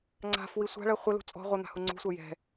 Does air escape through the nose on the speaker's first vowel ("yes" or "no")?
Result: no